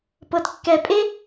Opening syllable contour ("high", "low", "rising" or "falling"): low